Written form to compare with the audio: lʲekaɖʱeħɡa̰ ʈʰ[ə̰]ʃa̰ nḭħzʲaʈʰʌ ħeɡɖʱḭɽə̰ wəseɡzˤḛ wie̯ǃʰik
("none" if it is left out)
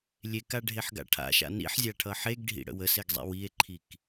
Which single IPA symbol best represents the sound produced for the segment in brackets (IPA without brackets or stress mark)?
a̰